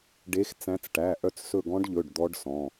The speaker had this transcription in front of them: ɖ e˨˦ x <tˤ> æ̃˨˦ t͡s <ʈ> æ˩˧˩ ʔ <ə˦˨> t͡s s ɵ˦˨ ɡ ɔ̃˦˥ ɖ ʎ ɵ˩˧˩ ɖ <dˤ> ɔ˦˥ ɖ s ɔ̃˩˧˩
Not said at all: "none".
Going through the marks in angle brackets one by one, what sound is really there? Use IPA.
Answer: t͡s, ʈ, œ˦˨, d̪

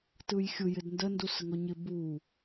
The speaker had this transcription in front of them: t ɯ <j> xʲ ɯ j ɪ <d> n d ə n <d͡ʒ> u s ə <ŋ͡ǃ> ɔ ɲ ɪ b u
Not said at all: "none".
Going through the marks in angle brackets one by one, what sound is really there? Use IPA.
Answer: j, d, d, ŋ

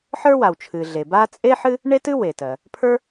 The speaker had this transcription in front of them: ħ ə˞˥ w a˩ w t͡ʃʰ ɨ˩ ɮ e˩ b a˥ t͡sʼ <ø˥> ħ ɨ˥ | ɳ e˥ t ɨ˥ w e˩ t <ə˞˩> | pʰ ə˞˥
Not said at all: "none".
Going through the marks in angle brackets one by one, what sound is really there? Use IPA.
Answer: e˥, ɜ˩

